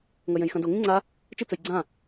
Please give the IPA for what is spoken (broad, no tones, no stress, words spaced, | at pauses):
ŋɐjẽjxɐ̃do ŋĩŋ͡ǀa | t͡ʃɨ t͡sɵjɡ͡ǀã